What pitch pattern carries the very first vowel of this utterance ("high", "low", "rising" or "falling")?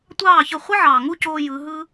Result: falling